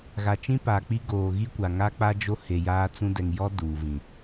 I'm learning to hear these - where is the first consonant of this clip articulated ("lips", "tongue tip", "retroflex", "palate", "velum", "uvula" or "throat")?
velum